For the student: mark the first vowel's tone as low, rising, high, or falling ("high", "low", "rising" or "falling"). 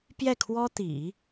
falling